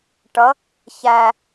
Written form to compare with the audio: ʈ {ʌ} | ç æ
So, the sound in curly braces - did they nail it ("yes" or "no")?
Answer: yes